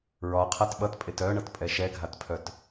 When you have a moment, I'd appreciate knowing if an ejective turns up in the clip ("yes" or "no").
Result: yes